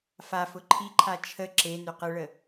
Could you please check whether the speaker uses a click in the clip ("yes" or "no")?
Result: yes